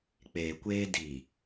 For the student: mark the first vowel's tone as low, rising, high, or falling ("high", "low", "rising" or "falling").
low